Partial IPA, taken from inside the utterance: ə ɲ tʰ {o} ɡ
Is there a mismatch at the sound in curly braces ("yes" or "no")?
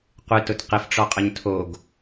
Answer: no